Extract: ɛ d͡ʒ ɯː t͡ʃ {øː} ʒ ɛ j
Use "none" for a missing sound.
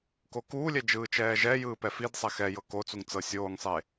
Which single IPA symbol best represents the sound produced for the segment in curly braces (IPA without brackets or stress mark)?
ɛː